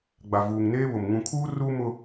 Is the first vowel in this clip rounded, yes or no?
no